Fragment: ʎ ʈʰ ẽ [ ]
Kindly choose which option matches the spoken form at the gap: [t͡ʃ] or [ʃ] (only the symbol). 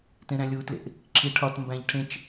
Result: t͡ʃ